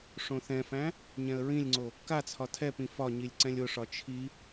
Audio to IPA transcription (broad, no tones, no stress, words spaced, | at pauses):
ʂõθɛ̃fæ̃ | ɲɛ̃ə̯ɹĩlʲŋ͡ǀo | kat͡sʰɒ tʰɛpĩ fɒɲilʲ ǀɛ̃lʲʊʂɒ t͡ʃʰi